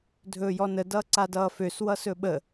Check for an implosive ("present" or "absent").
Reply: present